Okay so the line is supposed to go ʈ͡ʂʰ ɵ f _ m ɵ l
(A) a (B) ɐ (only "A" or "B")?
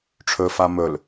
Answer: A